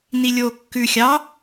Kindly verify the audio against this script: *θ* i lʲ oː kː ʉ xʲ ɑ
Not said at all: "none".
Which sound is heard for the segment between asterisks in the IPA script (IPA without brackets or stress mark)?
n